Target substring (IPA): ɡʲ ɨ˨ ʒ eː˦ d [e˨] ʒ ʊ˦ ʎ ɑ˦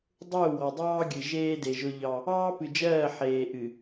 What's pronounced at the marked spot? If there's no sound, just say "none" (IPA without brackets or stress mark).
e˨